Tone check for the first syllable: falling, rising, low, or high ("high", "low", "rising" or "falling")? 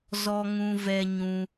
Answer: high